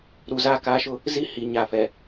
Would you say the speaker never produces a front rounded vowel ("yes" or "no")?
yes